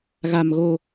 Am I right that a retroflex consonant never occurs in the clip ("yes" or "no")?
yes